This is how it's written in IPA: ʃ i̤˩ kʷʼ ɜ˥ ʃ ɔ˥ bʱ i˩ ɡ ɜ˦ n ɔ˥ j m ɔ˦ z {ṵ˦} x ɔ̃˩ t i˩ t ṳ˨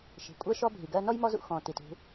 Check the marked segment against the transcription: correct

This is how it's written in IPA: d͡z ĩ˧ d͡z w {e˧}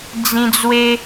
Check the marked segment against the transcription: correct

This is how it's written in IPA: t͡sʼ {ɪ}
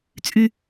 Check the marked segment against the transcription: incorrect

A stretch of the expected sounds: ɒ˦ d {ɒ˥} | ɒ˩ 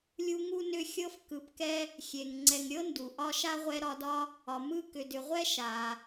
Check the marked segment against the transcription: correct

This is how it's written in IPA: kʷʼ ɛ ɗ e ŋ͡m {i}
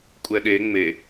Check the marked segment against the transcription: incorrect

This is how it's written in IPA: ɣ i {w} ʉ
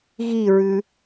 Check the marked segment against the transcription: incorrect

